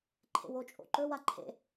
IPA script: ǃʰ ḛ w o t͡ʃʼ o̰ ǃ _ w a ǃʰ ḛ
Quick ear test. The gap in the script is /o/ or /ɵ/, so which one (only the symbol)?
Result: ɵ